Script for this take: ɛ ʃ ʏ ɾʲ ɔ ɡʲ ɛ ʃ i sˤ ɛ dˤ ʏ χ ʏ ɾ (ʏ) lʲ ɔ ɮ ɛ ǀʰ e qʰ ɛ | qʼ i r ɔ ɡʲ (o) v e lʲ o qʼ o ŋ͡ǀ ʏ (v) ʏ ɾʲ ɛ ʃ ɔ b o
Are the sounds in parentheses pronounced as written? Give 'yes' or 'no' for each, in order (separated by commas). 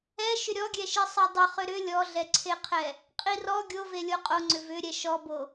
yes, yes, yes